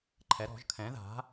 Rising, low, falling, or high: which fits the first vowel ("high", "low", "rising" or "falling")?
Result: rising